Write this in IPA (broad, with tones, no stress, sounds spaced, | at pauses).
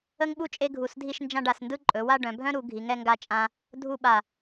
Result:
ə˥ ŋ ɓ u˥ t͡ʃʼ e˥ ɡʱ u˧˩ s dʱ i˥˧ ʃ n d͡ʒ ã˥˧ ɖ a˩˧ s n d ɯ˥˧ ǃʼ ɵ˩˧ w a˥˧ ɖ œ̃˩˧ bʱ œ̃˥ ɾ u˩˧ ɡʱ i˩˧ ŋ ɛ˧ ŋ ɡ a˧ t͡ʃʼ ã˧ | dʱ u˥˧ ɓ a˧˩